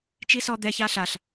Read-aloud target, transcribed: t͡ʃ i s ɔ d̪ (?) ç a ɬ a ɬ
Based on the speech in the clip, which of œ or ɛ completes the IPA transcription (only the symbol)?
ɛ